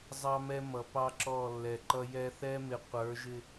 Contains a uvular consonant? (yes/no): yes